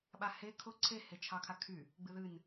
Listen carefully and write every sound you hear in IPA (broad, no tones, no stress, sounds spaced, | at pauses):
ɓ a h e kʰ ʊ ǀʰ e h e t͡ʃʰ ɑ kʰ a kʰ y | ɡ͡b ɨ ð ɨ n